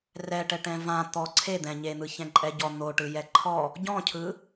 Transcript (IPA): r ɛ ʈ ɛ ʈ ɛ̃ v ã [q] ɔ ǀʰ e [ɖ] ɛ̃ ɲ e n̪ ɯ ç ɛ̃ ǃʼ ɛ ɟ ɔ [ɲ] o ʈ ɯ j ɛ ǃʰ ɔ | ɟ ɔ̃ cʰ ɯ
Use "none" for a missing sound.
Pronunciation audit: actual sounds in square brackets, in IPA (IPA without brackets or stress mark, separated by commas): t̪, d̪, n̪